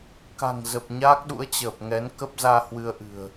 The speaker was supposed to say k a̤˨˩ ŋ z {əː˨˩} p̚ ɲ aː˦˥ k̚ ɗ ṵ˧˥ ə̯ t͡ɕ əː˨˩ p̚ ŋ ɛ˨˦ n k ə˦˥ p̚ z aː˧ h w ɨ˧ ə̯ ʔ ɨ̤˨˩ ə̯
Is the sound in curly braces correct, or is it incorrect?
incorrect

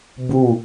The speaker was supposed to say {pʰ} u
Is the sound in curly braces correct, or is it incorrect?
incorrect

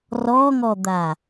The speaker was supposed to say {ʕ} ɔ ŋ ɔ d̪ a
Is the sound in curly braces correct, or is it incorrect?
incorrect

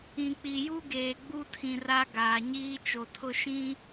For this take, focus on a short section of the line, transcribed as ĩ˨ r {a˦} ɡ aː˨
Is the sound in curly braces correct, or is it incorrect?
correct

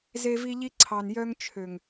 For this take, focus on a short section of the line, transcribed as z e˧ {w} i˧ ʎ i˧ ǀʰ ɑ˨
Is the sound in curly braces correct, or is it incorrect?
incorrect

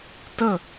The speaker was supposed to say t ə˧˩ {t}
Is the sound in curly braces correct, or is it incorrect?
incorrect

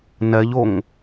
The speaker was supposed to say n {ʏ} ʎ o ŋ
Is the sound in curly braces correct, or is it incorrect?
incorrect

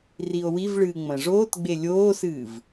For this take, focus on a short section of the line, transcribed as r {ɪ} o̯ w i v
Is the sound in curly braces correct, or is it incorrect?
incorrect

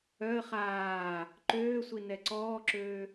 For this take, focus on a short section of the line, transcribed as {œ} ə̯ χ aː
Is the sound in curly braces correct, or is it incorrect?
correct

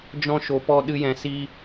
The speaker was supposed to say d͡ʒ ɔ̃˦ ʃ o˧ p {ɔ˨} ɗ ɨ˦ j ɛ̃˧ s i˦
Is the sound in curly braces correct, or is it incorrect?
incorrect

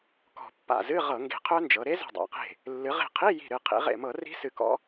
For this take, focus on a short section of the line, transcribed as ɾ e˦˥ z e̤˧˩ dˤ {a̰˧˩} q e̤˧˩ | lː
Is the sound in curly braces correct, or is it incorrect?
incorrect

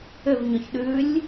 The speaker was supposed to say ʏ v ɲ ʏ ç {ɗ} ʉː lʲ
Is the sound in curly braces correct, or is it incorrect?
correct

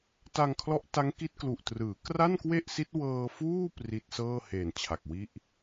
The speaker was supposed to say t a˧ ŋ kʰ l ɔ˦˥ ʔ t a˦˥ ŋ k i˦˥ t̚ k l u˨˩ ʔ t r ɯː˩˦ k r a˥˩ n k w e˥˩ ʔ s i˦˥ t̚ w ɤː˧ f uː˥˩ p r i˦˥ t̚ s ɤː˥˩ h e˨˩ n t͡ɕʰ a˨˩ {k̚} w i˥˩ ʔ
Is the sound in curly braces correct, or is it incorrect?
correct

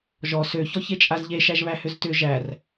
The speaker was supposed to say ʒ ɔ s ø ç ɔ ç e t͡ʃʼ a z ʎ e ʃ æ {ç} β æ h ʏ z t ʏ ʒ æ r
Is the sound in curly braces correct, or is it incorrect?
incorrect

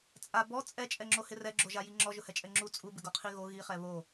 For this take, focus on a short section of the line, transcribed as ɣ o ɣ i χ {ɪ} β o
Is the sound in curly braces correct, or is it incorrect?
incorrect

